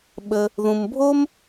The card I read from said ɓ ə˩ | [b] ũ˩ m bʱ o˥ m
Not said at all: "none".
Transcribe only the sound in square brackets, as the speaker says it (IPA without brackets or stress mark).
ð